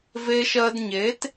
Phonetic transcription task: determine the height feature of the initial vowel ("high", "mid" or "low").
mid